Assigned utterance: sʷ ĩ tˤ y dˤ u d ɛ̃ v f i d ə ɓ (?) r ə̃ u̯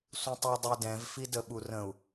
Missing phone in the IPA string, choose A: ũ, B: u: B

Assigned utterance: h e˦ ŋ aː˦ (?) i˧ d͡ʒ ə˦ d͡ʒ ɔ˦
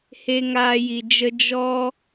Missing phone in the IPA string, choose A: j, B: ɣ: A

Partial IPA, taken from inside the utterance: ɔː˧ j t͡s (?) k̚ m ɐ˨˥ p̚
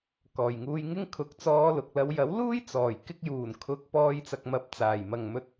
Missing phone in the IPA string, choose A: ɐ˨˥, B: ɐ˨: B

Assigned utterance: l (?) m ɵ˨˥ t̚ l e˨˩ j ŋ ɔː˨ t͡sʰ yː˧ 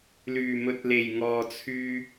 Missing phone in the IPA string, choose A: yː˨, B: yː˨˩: B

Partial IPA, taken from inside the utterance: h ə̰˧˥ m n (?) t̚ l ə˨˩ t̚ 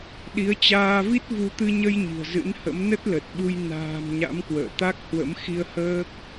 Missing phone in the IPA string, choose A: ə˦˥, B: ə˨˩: A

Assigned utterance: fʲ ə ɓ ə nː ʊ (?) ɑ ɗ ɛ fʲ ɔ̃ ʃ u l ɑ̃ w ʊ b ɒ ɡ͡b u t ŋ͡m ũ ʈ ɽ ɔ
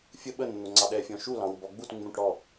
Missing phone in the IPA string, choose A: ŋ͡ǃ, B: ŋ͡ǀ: B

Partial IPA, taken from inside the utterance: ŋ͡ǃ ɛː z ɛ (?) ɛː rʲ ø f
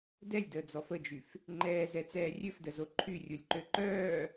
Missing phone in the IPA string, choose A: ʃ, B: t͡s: B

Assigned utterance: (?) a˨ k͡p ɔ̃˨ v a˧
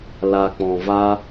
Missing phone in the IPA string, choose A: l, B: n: A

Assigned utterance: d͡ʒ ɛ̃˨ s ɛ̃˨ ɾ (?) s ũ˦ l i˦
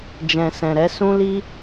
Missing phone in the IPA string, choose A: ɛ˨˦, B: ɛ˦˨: A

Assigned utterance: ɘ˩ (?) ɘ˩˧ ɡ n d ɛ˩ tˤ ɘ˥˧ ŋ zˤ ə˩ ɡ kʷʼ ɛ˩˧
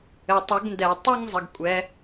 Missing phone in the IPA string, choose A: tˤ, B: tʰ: A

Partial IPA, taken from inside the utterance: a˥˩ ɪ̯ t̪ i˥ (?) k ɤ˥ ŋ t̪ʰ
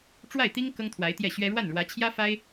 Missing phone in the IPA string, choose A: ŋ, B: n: A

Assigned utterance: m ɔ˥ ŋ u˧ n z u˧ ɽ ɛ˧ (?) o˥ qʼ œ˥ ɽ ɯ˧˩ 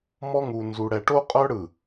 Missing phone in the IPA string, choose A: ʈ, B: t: A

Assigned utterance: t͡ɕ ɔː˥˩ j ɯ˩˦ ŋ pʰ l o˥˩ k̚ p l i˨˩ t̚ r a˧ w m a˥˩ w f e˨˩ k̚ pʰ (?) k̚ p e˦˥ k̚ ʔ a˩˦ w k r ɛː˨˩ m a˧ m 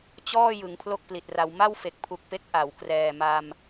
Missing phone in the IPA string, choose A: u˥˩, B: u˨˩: B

